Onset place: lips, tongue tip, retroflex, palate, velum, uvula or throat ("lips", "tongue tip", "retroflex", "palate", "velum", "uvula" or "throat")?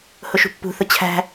throat